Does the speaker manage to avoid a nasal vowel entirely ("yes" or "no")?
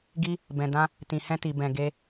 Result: no